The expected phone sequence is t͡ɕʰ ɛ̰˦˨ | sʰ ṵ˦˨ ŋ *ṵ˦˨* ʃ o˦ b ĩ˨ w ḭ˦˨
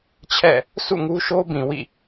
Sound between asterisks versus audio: incorrect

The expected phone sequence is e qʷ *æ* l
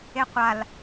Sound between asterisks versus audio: incorrect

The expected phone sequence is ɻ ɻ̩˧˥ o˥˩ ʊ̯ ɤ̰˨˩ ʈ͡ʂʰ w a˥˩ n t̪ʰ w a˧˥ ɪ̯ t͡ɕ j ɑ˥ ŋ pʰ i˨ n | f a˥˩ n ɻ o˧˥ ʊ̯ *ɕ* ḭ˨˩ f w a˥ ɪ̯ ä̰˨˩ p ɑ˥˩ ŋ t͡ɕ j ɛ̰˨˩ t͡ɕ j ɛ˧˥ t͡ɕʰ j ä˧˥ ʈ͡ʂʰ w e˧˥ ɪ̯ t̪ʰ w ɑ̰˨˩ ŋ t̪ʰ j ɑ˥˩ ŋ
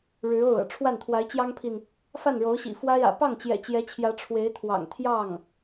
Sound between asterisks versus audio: correct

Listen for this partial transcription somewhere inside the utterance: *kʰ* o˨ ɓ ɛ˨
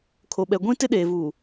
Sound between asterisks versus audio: correct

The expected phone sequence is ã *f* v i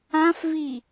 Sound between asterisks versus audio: correct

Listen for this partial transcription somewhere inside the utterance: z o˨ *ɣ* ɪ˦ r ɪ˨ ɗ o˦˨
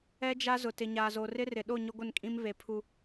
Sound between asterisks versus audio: incorrect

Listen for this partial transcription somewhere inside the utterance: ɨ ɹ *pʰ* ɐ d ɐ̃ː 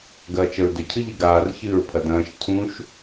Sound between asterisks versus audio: correct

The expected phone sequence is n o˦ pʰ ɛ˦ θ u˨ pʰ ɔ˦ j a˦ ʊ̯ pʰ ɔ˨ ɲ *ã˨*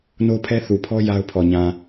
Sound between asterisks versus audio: correct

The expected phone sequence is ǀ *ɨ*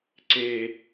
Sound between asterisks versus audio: incorrect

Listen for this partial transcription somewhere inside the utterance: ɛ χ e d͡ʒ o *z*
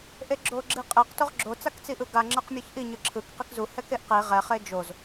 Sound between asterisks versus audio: correct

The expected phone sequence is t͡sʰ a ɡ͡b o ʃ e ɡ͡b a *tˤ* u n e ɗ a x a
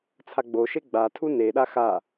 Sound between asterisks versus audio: incorrect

